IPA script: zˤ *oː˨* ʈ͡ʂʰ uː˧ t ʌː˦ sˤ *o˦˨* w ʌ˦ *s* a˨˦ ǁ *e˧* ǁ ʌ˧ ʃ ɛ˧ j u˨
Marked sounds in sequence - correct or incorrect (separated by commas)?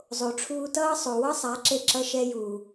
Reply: incorrect, incorrect, incorrect, correct